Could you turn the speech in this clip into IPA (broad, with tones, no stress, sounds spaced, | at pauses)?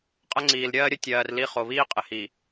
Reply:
qʼ ə˦ ŋ͡ǀ iː˨ l ɾʲ ɜː˦ ɾʲ ə˦ tʲ ɜː˨ r l i˦ χ o˨ β iː˦ qʼ ɪ˨ h i˨